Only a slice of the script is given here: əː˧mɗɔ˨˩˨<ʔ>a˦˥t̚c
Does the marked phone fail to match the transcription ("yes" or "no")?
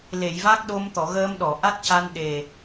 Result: no